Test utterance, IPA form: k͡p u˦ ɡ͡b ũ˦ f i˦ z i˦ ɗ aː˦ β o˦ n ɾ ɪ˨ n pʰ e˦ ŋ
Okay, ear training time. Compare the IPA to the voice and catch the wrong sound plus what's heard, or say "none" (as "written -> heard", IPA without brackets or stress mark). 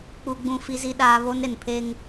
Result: none